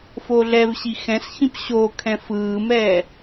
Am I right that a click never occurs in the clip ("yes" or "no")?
yes